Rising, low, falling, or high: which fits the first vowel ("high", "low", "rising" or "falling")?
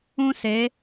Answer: high